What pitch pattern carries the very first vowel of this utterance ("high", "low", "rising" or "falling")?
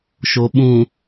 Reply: low